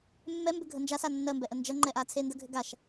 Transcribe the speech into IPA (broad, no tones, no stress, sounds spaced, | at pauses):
mː ɛ m b ʏ ɡʱ ə n d͡ʒ a s a nː ɜ m b ɛ ʔ ə n d͡ʒ ɐ ŋ͡ǃ ɛ ʔ a t͡sʰ e n d ə ɡʱ ʏ ɡ a ʃ